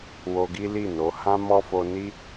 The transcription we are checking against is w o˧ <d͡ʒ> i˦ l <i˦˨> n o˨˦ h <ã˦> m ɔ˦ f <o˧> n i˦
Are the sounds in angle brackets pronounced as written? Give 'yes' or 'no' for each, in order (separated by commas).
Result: no, yes, yes, yes